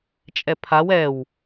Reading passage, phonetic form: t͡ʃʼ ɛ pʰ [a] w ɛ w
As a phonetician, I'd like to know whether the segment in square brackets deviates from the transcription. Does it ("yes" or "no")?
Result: no